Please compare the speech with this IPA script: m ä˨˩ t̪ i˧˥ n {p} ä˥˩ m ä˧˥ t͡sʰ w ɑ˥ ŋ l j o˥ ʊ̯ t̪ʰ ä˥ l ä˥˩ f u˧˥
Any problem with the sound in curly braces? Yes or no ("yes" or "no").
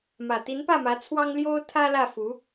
no